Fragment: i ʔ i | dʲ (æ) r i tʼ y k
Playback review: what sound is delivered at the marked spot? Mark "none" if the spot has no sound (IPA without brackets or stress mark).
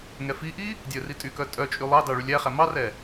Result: œ